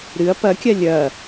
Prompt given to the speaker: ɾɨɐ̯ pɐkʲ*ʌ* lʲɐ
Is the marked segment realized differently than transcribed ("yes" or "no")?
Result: yes